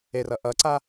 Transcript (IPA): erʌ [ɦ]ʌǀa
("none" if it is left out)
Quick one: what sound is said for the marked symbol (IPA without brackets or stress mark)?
ʔ